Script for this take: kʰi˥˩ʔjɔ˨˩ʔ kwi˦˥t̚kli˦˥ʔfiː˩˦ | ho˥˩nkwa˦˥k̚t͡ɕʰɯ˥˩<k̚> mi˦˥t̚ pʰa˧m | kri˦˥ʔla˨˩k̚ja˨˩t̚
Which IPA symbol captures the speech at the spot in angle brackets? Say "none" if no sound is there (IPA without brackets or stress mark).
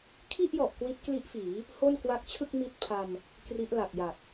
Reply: k̚